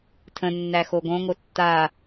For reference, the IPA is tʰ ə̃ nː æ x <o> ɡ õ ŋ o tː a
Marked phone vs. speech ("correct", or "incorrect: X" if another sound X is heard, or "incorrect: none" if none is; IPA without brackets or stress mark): correct